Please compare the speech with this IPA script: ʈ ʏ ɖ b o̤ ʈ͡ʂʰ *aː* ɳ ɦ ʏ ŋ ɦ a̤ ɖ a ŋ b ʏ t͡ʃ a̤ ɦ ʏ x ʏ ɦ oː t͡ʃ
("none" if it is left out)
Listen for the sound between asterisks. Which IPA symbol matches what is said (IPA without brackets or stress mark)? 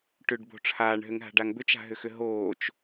aː